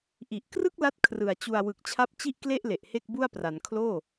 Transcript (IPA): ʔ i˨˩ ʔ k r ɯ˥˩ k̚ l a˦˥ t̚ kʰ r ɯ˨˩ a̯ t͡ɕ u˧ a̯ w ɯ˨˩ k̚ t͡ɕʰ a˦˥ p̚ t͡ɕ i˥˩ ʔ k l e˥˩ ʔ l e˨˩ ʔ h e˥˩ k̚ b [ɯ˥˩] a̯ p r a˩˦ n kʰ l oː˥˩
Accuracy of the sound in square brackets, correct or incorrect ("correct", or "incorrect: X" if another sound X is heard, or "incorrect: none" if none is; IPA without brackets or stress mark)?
incorrect: u˥˩